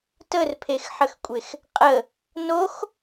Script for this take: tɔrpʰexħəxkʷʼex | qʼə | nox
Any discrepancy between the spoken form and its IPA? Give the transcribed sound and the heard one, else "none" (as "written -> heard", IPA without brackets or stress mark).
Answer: ɔ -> ə